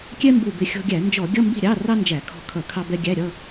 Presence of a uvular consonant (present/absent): absent